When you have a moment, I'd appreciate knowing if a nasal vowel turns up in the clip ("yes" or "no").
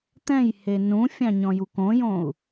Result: yes